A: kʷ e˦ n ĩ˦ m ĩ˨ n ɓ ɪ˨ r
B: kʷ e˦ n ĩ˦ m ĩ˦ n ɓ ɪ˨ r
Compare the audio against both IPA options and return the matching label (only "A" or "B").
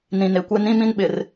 B